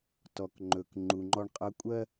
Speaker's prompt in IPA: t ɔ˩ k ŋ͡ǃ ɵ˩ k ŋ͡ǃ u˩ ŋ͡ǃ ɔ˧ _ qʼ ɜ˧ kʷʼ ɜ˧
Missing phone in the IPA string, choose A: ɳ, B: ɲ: A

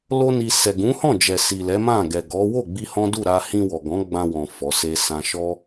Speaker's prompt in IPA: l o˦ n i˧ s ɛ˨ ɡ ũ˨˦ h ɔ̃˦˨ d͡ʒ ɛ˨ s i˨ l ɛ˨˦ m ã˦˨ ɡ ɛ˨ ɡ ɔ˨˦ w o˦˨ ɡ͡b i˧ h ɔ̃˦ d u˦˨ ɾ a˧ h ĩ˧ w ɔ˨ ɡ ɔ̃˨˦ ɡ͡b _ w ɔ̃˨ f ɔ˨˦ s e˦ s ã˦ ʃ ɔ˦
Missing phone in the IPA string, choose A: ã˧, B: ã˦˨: A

